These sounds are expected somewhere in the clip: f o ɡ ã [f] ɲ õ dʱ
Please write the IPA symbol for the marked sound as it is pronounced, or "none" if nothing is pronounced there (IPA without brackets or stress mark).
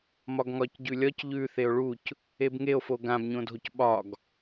b